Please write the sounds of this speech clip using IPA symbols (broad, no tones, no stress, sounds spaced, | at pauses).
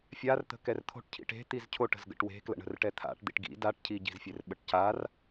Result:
fʲ a r t̪ ə̤ k ɛ r t̪ʰ o̤ ʈ cʰ ḭ ʈ e̤ t̪ i z cʰ o ʈ ə̤ z ɡ ə̰ ʈ w e̤ k l ə̰ ɳ ə̤ r ʈ ɛ t̪ʰ a̰ ʈ d̪ ḭ ʈ ɡ ḭ d a ʈ cʰ i ɟ i̤ z fʲ e r ɓ ə ʈ c a r